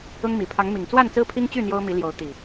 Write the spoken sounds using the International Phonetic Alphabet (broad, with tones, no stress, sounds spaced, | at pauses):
ʊ˦ ŋ m i˨˩ pʰ ɑ˨˦ ŋ m i˨˩ ŋ t͡s w a˥˨ n t͡s ɹ̩˦ pʰ i˦ ŋ t͡ɕ y˥˨ n̪ j o˦ ʊ̯ m i˨˦ l j o˨˦ ʊ̯ t̪ i˨˩